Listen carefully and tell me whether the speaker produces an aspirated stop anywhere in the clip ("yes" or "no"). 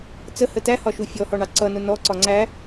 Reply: no